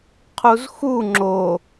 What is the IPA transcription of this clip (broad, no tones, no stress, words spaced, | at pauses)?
qʰuzxu ŋ͡ǁo